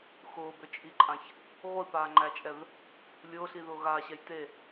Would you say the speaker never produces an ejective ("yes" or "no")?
no